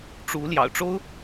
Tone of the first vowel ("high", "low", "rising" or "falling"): rising